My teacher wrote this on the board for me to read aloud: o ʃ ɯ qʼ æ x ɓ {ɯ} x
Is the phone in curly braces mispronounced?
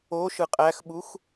yes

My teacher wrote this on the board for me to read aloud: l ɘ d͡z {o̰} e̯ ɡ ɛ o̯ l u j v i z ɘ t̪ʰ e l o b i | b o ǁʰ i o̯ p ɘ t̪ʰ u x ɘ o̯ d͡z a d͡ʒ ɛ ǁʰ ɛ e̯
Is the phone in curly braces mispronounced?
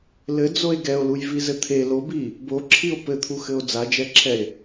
yes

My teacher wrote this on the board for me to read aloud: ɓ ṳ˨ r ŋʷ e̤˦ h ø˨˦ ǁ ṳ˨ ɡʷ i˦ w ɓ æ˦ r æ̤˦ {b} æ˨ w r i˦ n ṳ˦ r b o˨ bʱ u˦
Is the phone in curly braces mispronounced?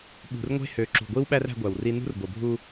yes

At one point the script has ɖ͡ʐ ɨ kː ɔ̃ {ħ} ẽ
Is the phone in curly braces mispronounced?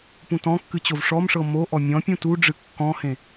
yes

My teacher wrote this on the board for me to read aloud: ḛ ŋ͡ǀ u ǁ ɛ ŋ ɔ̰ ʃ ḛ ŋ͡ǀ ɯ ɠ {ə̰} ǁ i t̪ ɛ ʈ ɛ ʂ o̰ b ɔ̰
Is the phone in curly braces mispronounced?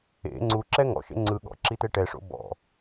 yes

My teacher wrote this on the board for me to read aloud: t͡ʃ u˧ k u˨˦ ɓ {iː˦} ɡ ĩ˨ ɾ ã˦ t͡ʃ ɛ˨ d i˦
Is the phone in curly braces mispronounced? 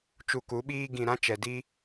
no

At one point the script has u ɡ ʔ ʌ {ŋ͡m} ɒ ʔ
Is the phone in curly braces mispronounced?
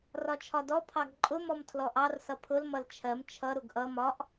yes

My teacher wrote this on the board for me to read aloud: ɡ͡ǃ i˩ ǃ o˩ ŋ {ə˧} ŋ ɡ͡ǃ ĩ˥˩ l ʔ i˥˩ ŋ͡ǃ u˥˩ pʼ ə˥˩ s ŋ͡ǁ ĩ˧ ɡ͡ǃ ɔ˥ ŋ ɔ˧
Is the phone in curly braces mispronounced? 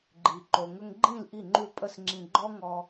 no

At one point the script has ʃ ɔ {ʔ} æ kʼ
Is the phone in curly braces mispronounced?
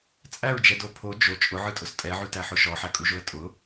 yes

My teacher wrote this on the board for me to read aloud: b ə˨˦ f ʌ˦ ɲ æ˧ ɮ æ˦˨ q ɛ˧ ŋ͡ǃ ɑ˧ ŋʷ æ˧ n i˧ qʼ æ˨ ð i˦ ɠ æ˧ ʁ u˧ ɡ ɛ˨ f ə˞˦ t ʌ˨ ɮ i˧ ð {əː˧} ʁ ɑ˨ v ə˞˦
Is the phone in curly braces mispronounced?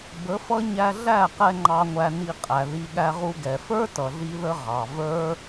yes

